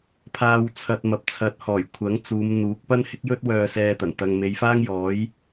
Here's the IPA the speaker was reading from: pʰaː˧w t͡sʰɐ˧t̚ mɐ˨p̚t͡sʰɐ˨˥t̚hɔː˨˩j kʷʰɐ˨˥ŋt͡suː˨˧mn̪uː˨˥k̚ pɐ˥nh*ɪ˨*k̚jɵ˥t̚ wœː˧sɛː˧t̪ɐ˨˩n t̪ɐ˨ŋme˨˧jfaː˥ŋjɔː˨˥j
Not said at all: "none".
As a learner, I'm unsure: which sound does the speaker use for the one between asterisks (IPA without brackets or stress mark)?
ɪ˥